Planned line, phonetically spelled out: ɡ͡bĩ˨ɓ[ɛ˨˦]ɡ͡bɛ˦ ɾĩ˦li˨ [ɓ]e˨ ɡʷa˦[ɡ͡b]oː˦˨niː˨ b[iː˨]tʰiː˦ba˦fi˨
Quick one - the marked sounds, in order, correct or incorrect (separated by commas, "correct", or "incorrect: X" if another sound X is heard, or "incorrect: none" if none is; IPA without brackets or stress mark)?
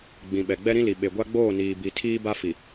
incorrect: ɛ˨, correct, correct, incorrect: i˨